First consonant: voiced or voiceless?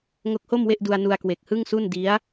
voiced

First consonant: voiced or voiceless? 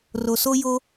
voiced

